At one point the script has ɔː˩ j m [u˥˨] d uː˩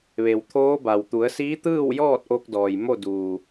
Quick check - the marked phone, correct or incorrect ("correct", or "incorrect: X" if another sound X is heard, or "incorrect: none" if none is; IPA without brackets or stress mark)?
incorrect: o˥˨